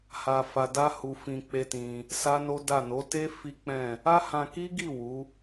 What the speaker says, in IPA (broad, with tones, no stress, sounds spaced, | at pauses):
h a˧ f a˧ d a˦ h u˧ f ĩ˧ k͡p e˦ t ĩ˧ | s a˦ n o˦ d a˦˨ n o˨˦ t e˦ f i˦ k͡p ɛ̃˦˨ | a˦ h ã˧ k i˦ ɡ i˦˨ w u˨˦